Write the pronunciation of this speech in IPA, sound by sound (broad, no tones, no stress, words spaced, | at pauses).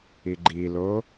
iɡ͡ǃilo